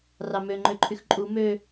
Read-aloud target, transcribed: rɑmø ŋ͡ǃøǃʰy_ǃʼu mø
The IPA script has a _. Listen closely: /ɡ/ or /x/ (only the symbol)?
x